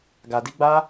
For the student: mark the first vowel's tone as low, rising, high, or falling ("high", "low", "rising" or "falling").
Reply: low